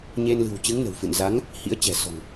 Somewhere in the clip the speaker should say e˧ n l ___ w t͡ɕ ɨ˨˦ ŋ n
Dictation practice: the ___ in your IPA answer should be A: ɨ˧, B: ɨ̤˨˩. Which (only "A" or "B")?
B